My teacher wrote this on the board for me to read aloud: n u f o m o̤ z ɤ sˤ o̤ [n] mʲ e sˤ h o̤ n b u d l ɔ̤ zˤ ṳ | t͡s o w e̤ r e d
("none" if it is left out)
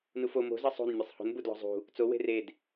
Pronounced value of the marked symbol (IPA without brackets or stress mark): n